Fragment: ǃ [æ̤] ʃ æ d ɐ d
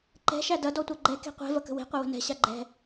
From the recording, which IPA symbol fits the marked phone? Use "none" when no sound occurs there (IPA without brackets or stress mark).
ɛ̤